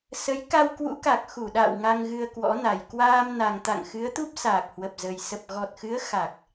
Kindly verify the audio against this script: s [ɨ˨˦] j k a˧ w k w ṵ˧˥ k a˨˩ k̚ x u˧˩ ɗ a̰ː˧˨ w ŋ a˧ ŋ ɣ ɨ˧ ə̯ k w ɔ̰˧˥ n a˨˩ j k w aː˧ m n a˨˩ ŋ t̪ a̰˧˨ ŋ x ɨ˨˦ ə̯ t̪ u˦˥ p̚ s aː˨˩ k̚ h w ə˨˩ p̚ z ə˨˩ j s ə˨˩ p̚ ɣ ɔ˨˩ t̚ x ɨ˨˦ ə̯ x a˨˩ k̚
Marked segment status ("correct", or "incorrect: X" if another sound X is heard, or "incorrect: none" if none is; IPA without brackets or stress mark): incorrect: ə˨˦